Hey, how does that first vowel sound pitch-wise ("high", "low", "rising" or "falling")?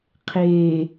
low